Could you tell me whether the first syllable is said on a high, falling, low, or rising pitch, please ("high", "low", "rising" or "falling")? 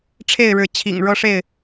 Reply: falling